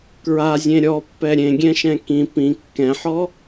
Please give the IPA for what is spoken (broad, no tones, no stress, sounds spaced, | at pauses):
k ɹ a zʲ ẽ ɾʲ ɔ pː ɛ ɾʲ ẽ ɡʲ ɛ̃ ʃ ɛ̃ k ĩ p ĩ kː ɛ̃ ħ ɔ